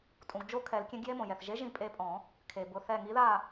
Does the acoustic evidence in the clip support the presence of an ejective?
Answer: yes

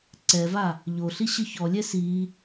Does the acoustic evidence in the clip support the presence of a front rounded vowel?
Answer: no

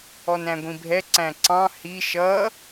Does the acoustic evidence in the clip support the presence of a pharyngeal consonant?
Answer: no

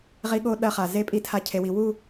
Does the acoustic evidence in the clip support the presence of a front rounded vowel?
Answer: no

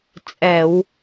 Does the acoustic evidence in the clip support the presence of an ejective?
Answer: yes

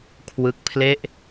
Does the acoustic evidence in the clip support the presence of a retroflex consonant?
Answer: no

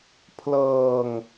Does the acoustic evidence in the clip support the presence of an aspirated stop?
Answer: yes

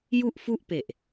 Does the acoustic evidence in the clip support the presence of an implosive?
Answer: no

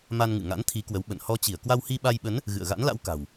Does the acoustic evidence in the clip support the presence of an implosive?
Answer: yes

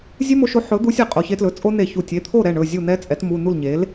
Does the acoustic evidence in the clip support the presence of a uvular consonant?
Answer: yes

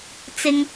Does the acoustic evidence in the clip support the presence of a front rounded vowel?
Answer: no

